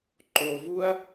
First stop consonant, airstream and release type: click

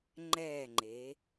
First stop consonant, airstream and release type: click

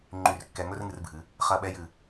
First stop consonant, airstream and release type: click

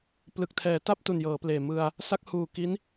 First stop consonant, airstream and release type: plain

